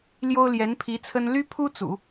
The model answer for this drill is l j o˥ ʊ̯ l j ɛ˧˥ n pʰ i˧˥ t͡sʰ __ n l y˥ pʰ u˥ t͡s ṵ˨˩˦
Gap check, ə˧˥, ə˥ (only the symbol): ə˥